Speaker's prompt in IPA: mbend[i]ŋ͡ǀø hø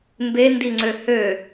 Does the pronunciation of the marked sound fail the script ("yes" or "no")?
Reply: no